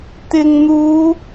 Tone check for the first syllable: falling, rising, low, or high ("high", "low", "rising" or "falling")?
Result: low